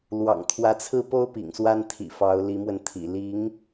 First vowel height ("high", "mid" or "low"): low